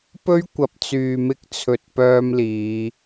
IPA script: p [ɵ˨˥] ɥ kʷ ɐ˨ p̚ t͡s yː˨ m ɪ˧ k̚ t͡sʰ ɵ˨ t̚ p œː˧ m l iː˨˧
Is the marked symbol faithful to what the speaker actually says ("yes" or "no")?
no